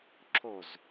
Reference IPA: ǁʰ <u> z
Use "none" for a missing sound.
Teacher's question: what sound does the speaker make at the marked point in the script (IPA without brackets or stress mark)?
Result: o